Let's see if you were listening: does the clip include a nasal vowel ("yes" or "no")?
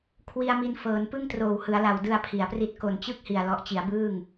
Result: no